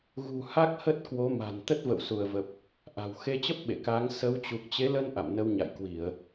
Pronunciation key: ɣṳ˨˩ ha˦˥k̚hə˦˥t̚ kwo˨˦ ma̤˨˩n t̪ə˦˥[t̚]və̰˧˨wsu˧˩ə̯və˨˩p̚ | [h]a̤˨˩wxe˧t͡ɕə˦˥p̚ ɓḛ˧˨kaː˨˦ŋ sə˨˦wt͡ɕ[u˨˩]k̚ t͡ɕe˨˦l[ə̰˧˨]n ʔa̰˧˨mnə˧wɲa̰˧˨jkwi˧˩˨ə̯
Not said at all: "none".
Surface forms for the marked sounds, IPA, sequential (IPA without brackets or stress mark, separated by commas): t̚, ʔ, u˨˩, ə˧